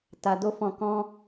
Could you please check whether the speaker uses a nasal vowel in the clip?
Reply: yes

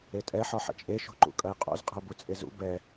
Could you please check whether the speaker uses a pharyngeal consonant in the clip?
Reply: yes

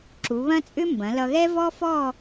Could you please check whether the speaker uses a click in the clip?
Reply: yes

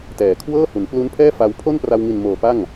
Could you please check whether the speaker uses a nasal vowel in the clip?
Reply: no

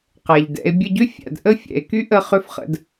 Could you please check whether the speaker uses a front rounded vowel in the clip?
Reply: yes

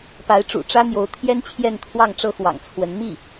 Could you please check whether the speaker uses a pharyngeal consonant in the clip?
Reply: no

